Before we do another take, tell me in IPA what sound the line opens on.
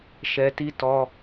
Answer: ʃ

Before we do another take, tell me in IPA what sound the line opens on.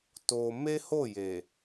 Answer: t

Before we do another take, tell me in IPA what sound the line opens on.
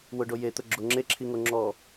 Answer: w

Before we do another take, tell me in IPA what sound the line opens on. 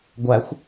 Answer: ɡʷ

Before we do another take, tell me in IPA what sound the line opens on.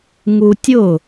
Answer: ŋ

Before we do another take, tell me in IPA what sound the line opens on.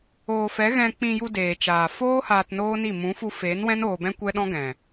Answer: oː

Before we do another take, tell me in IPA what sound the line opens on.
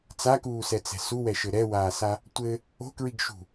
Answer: t͡s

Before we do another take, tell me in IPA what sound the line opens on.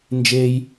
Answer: n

